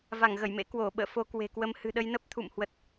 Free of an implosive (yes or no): no